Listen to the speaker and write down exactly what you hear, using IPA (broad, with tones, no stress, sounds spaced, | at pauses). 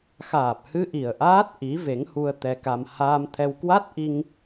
x aː˨˩ p̚ h ɨ˧ ʔ i˨˩ ə̯ ʔ aː˦˥ t̚ ʔ i˨˦ v e˨˦ ŋ h u˧ ə̯ t̪ ɛ˧ k a˧ m h aː˧ m t̪ʰ ɛ˧ w k w a˦˥ t̚ ʔ i˧ ŋ